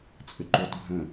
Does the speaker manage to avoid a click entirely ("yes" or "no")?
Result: no